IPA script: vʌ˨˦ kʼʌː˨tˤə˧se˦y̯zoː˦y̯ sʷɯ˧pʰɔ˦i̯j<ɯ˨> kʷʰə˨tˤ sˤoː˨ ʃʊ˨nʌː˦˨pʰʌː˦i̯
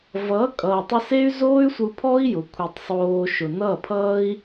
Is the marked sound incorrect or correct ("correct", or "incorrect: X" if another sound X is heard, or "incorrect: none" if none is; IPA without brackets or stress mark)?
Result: incorrect: ʊ˨